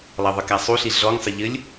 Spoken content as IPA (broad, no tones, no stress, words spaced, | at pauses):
lˠɐðˤɘkasˤu ɬiɮɔŋ sˤɘʎɘlʲ